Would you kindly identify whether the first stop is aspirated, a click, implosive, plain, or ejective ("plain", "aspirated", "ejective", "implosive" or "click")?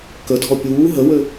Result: plain